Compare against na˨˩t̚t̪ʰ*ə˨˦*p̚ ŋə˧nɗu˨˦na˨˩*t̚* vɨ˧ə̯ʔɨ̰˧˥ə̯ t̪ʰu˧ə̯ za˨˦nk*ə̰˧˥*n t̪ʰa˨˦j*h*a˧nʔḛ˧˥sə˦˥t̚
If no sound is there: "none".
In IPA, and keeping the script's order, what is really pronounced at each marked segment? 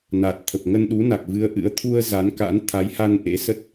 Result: ə˨˩, k̚, a̰˧˥, h

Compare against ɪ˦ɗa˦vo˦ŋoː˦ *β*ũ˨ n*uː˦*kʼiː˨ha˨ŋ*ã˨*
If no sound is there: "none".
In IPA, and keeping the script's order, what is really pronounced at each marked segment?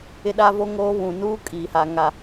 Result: β, uː˦, a˨

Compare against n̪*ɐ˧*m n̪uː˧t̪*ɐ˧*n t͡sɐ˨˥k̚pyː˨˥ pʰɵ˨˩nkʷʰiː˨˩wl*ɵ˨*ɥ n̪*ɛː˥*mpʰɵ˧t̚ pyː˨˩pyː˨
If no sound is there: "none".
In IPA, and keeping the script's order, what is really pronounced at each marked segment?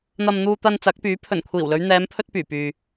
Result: ɐ˧, ɐ˧, ɵ˨˧, ɛː˨˧

